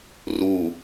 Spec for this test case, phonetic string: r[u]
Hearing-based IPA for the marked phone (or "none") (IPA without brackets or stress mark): u